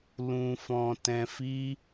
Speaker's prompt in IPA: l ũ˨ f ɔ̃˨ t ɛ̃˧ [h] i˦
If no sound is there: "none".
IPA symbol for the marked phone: f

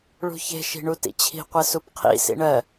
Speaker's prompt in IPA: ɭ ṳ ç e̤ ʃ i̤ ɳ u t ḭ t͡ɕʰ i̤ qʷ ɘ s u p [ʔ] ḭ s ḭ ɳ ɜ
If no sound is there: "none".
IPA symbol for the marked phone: qʰ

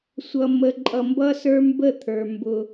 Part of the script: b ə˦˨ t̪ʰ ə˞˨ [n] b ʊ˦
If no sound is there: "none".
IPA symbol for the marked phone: m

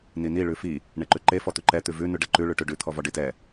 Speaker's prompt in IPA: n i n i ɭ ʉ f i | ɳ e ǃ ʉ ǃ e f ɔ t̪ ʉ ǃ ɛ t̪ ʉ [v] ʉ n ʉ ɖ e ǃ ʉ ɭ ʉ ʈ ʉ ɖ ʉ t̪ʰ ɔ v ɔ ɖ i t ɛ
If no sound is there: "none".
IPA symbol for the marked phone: v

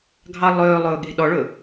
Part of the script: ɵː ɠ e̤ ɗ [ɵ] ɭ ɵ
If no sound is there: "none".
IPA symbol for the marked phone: ɔ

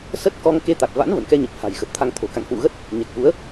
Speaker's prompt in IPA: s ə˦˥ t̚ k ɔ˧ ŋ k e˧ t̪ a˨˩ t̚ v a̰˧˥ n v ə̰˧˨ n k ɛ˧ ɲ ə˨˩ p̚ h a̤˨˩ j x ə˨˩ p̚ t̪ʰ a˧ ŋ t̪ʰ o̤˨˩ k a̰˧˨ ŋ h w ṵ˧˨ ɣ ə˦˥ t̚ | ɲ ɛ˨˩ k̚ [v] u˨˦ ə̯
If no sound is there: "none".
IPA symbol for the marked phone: v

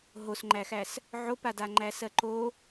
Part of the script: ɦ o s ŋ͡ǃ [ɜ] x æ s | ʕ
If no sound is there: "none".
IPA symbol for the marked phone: æ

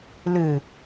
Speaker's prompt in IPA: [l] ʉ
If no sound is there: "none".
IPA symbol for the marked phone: l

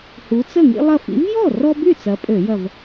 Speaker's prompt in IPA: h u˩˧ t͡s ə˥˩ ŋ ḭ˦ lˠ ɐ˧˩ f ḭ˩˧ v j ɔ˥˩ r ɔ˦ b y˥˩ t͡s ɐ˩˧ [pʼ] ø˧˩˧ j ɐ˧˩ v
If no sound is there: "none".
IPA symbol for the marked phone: pʼ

